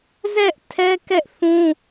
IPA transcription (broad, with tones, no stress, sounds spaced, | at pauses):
z ɛ˦ ʔ tʰ ɛ˦ k ɛ˦ ʔ θ ũ˦